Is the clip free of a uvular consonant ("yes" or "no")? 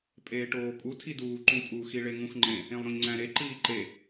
yes